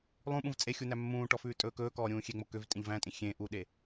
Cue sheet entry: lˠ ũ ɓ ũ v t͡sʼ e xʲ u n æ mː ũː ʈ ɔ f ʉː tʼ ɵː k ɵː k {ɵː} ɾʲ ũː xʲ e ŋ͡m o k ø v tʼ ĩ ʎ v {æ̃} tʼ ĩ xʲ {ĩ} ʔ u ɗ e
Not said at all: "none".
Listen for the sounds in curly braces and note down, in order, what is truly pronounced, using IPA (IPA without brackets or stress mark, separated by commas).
ɔː, æ̃, ẽ